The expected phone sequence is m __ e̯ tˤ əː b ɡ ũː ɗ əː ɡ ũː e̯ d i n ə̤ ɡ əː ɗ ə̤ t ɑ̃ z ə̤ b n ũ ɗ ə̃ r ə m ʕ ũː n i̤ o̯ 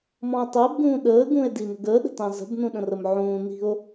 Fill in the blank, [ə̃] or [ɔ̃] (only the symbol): ɔ̃